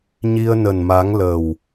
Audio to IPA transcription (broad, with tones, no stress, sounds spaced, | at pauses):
ɲ i˧ ə̯ n ə˨˩ n m a˨˦ ŋ l ə˨˩ w